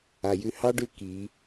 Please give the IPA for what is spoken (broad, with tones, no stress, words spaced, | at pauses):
a˩jʉ˧hɑ˥ ɖʉ˧ ki˩˧